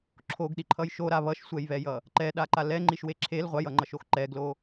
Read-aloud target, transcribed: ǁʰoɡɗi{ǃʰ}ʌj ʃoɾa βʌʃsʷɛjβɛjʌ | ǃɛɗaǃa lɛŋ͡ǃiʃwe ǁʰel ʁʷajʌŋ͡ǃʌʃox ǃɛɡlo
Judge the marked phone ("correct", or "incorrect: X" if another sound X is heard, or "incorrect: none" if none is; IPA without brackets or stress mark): correct